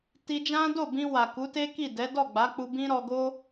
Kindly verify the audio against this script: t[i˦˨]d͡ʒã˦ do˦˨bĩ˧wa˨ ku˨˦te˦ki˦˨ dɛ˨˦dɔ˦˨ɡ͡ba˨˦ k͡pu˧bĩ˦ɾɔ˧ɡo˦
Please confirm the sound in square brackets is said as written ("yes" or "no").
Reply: no